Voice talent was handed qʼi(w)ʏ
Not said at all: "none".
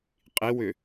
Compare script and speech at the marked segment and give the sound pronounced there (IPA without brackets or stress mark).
w